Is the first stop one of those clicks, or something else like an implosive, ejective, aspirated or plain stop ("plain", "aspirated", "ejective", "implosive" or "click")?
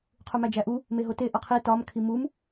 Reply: aspirated